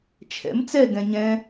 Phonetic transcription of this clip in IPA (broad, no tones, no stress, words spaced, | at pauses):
t͡ʃʰɛ̰m t͡sɛɡɛ̃ ɲɛ̃